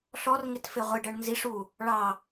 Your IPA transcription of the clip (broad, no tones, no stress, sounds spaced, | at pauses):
ɬ ɔ r ŋ ɪ t f ɪ ʁʷ ɪ ɖ ɜ ɳ n z i ʂ u | ɭ ɑ